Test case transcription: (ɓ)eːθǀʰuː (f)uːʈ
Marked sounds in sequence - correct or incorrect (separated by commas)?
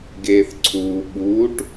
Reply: incorrect, incorrect